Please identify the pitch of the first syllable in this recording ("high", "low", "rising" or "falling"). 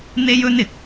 high